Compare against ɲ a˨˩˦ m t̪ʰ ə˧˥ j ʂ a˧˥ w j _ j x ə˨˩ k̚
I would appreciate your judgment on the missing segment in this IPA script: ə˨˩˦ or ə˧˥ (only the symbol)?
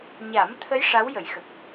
ə˨˩˦